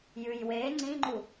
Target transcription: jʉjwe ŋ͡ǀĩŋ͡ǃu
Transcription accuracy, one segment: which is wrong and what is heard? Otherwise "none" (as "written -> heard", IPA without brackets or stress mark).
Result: none